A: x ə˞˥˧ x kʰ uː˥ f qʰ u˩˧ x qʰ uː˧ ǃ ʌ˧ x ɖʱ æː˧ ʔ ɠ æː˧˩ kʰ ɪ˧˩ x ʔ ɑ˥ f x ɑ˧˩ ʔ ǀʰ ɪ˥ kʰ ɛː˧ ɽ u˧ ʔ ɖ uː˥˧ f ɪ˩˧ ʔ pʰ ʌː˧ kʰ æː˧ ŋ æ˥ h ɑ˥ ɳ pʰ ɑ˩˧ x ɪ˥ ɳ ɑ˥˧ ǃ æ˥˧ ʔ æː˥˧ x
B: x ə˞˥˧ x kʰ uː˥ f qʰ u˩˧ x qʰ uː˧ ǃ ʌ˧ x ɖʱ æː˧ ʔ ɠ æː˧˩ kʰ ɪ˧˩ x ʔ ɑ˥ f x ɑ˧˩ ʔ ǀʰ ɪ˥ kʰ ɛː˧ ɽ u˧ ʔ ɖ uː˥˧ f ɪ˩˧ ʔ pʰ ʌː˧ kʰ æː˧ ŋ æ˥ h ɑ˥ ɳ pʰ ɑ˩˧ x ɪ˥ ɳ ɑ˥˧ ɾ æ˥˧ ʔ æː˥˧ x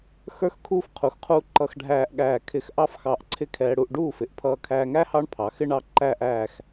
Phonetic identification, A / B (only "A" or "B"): A